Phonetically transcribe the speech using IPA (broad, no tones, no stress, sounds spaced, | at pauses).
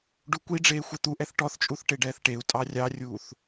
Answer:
ɖ u kʷ i ɖ͡ʐ eː xʷ ɛ t̪ u ʔ ɛ θ ʈ ɔ θ t͡ʃʼ u θ ʈ e ɖ ɛː θ ʈ e u̯ tʼ ɑ rʲ ɑ rʲ uː θ